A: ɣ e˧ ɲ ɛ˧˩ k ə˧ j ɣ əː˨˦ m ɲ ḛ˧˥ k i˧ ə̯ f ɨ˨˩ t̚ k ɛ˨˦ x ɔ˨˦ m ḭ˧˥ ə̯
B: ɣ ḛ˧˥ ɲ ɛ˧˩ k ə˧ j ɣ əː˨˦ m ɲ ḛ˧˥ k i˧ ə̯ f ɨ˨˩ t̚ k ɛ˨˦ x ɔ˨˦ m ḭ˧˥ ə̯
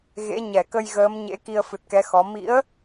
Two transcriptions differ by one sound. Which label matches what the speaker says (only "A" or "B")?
B